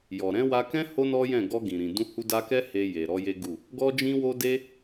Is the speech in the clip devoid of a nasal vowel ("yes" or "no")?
no